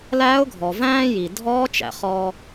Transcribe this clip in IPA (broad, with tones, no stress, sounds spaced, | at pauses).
l æː˧˥ ʊ̯ ɡʱ ɔ˩ v æ̃ː˥ j i˩ dʱ ɔː˧˥ t͡ʃ æ̰˩ χ ɔː˧